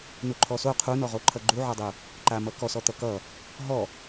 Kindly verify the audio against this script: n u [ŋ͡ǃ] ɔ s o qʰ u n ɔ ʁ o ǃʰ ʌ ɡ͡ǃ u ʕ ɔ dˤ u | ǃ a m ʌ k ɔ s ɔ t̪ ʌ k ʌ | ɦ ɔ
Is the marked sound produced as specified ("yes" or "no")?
no